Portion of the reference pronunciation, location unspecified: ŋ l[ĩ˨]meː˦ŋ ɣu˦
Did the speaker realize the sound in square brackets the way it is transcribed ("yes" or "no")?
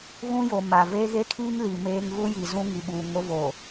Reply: no